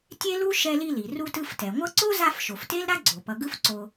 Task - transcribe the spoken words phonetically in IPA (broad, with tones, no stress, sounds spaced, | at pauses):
tʲ e˥ l u˥ ʃ ɛ˦ l i˦ l i˩ r u˦ t ɯ˦ f t ɛ˩ ŋʷ ʌ˥ ǀ o˥ z a˦ f ʃ o˩ f t e˥ l ɾ a˥ ɡ͡ǀ o˩ p ʌ˨ ɡ ɯ˦ f ǀ o˨